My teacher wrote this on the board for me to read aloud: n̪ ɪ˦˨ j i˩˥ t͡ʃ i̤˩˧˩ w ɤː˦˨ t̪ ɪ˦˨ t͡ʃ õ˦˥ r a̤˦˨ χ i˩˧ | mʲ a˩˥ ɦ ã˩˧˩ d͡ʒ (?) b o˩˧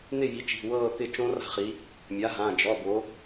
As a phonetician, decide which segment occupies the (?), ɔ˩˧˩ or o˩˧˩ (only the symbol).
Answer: ɔ˩˧˩